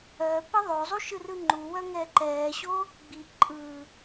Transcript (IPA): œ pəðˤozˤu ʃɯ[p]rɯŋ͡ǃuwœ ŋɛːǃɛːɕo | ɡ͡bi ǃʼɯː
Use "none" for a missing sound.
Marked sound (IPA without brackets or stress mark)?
none